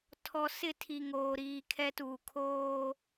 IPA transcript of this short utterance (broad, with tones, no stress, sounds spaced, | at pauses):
tʰ ɔ˨ s ɪ˦˨ tʰ i˨ ŋ oː˨ ɾ iː˨ kʰ ɛ˦ t uː˨ kʰ oː˦